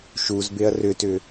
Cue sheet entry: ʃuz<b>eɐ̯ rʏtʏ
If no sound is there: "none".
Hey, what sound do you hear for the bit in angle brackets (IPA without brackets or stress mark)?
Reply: b